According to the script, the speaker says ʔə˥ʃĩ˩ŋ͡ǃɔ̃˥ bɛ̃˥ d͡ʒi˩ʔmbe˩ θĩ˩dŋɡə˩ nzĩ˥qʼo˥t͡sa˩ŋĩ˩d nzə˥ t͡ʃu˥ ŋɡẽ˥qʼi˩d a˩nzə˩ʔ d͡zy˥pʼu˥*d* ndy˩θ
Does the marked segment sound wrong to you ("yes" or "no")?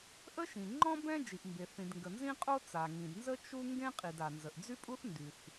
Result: yes